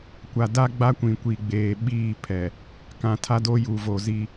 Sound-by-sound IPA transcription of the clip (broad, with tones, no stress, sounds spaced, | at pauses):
kʷ a˨ d a˦ ɡ͡b a˦ kʷ ĩ˨ kʷ i˨ ɡ͡b eː˨ ɓ iː˦˨ pʰ ɛ˨ | k ã˨ tʰ a˦ d oː˦ j u˨ v oː˨ z i˦˨